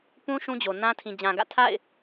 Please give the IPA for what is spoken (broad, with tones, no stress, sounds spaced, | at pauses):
p ũ˦ ʃ ũ˦ d͡ʑ o˨ n ã˦ tʰ ĩ˨ d͡ʑ ã˨ ɡ ä̰˦˨ tʰ a̰˦˨ ɪ̯